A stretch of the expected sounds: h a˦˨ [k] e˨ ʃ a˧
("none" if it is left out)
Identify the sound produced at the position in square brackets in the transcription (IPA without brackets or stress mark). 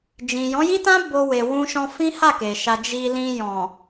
k